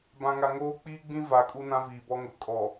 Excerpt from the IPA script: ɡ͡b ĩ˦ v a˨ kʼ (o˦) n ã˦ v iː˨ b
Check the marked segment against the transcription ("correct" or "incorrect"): incorrect